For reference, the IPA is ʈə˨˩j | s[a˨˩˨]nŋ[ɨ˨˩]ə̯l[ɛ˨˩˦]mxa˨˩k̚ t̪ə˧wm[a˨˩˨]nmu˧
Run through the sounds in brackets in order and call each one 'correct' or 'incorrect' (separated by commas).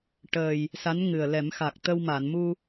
incorrect, correct, correct, correct